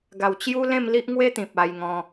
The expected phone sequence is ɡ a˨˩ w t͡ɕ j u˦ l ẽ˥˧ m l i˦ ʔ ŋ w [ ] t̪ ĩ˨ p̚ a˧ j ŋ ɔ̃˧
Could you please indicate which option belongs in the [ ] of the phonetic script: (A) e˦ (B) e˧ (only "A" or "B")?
A